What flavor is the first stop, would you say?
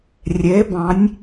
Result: plain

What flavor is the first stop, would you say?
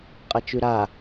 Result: ejective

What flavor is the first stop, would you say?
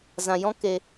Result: plain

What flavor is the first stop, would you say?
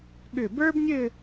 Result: implosive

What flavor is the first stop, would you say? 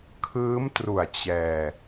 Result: aspirated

